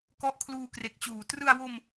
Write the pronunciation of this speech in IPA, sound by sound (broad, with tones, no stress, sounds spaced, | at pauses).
k ɔ˦˥ ʔ kʰ l uː˧ k r e˨˩ k̚ t͡ɕ uː˩˦ t r ɯ˧ a̯ w o˧ m